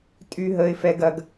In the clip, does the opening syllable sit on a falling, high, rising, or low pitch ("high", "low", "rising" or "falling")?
high